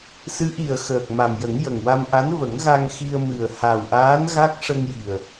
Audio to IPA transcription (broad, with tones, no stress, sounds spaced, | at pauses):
s ɨ˧˥ ʔ i˨˩ ə̯ x əː˨˩ k̚ m a˨˩ m j ə˨˩˦ ŋ j ə˨˩ ŋ w a˧ m ʔ a˧˥ n v ə˨˩˦ ŋ ɣ a˧ ŋ x i˧ ə̯ m ɨ˨˩ ə̯ h a˨˩ w ʔ aː˧˥ n ɣ a˦˥ k̚ ʂ ə˧ ŋ j i˨˩ ə̯